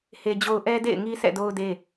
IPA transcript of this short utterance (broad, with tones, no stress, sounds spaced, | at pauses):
h e˦ d͡ʑ o˦ ʊ̯ ʔ ɛ˦ d ḛ˦˨ ɪ̯ ŋ i˦ sʰ ɛ̰˦˨ d o˦ ʊ̯ d e˦